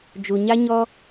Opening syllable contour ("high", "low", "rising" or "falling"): low